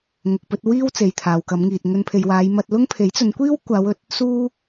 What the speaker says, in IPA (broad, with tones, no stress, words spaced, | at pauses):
ŋʊ˨k̚pɵ˧t̚ wiː˥w t͡se˨jt̪ʰaː˨wkɐ˨˧mŋiː˨t̚ ŋɵ˧npʰe˨jwaː˨˧j mɐ˧t̚lʊ˥ŋ pʰe˨˥jt͡sɵ˨˧n kʷiː˥w kʷaː˨˧wɵ˨t̚ | suː˥